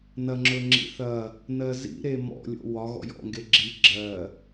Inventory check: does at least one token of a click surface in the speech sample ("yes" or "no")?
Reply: yes